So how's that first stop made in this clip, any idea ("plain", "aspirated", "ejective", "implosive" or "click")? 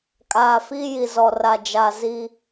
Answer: ejective